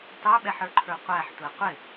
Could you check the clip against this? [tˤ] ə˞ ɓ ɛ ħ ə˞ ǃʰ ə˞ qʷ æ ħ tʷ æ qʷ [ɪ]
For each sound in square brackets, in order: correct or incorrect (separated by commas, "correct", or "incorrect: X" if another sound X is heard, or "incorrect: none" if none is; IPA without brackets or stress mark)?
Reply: correct, correct